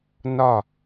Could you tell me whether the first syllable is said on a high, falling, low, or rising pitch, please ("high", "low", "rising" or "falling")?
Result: falling